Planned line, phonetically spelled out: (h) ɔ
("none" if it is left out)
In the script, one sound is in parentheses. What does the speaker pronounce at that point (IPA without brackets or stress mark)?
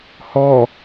h